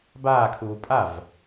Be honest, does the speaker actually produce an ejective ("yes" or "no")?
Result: yes